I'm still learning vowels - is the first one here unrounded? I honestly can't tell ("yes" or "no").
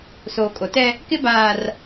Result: no